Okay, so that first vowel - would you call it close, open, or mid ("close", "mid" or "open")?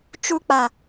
close